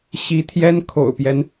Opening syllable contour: rising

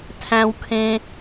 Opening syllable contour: high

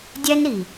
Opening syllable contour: high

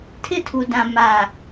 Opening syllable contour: falling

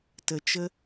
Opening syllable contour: low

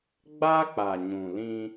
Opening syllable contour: high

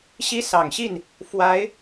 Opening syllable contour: high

